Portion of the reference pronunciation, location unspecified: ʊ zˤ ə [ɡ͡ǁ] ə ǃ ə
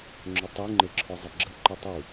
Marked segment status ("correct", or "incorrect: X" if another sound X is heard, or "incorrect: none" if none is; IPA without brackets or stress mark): correct